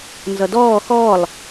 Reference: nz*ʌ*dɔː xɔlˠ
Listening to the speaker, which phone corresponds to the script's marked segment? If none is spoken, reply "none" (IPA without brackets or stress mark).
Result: ʌ